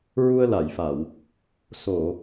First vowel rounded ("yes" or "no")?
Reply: yes